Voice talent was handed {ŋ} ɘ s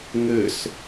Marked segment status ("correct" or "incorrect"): correct